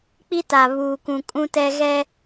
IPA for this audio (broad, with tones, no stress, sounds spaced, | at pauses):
k͡p i˦ t a˨ β uː˨ k ũ˨ kʼ ũ˦ t ɛ˦ ɣ ɛ˦